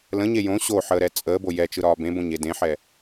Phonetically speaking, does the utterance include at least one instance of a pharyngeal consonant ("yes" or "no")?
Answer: yes